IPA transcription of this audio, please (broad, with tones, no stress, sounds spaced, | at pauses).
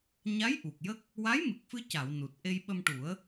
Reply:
ɲ a˧˥ j ʔ u˨˩ k̚ j ə˦˥ k̚ | w a˧˥ j m ɨ˨˩ k̚ f ɨ˧ c a˨˩˨ w n u˨˩ t̚ ʔ e˧ j ɓ ə˧ m ʈ u˨˩˦ ə̯